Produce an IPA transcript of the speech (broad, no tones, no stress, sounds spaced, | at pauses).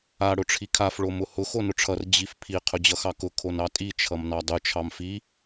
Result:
a ɽ ʊ ʈ͡ʂʰ i kʰ a f ɭ o m ʊ h ʊ x o n ʊ ʈ͡ʂʰ ʌ r d͡ʑ i f pʰ i qʰ ʊ d͡ʑ ʌ x ɑ k ʊ kʰ o n ɑ tʼ i t͡ʃʰ ʌ m n ɑ dˤ ʊ t͡ʃʰ ɑ m f i